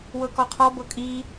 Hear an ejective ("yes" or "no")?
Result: yes